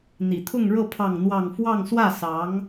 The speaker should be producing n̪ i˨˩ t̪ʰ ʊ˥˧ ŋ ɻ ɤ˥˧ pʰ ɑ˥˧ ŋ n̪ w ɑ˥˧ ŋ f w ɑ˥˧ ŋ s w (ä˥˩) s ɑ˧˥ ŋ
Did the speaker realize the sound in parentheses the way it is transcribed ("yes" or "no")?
yes